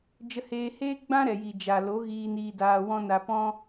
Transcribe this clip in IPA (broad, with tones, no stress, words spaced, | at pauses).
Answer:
d͡ʒə˧heː˧ heː˦ɡ͡bã˦ɾɛ˨ji˨ d͡ʒa˨lo˨˦ ɣiː˧niː˧ daː˧wɔ̃˦ na˧pɔ̃˦